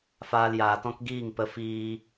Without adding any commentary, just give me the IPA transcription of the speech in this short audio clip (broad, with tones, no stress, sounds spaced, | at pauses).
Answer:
f aː˧ l j aː˨ t ɔ̃˦ k ɡ iː˦˨ ŋ p ə˧ f iː˧